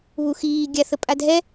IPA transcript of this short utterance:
β u x iː ɡʲ a θ ə pʼ a dʱ ɛ

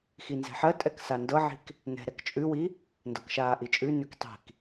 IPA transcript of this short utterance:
x i n z ɛ̤ ħ ɜ tʼ ɛ k s a n d ɤ ʕ i̤ k | n ɛ̤ ɾ ɛ k t͡ʃʼ ʉ w i | n d ɤ k ʃ aː ʔ i t͡ʃʼ ʉ n ʉ k tˤ i̤ k

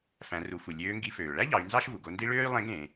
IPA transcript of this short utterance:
f æ̃˩˧ r u˩˧ f u˩ lʲ øː˧˥ ŋ ɡ i˧˥ f øː˩ ɭ æ˥ ʎ ɑ˩˧ y̯ n z ɑ˥ ʃ v u˩ ɡ o˧ n d i˥ ɭ øː˥ y̯ lˠ ẽ˧˥ ɡ ẽ˩˧

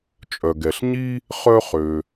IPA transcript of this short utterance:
t͡ʃʼ œ˩ ɡ ɛ˩ ɬ ɲ i˥ | χ œ˥ χ ø˩

